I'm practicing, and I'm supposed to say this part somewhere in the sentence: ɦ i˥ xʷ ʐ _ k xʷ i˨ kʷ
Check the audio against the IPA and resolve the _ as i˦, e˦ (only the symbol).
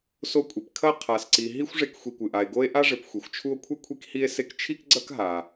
e˦